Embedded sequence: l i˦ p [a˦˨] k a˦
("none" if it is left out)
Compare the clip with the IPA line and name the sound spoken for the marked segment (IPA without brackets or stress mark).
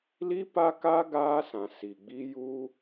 a˦